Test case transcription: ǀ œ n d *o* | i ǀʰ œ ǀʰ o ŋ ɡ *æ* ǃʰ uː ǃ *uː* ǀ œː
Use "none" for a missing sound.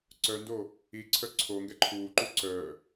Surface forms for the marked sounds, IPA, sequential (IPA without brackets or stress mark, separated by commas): o, ɛ, u